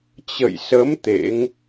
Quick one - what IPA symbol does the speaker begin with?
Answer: t͡ɕ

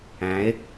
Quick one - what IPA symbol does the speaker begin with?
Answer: æ̃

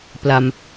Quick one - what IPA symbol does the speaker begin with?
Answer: p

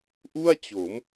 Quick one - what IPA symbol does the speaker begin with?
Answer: ʔ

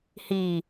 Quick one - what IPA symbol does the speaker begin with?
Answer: h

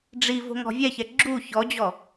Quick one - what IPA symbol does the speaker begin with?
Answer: ɖ͡ʐ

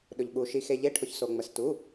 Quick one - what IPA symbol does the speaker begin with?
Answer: ɗ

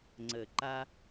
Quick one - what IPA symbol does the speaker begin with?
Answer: ŋ͡ǀ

